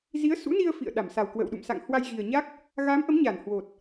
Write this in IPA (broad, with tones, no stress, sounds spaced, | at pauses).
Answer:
z i˨˦ ə̯ s ṵ˧˥ n i˧ ə̯ f ḭ˧˨ ə̯ ɗ a˧˩ m s a˨˩ w k w ə̰ː˧˨ w ɗ ṵ˧˨ m s a̰˧˨ ŋ h w a˧ j ɣ i˨˩ ə̯ ɲ a˦˥ k̚ | ɣ a˨˦ m ʔ ə˨˦ m ɲ a˧˩ n h w o˨˩ t̚